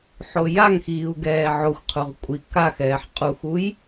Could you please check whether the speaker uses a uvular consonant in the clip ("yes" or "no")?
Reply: yes